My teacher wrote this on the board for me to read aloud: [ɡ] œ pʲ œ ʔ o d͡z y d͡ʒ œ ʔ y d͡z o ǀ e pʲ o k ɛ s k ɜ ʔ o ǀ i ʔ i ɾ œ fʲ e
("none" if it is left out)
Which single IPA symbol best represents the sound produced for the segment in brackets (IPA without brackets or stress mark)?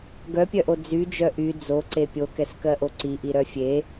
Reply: ɡ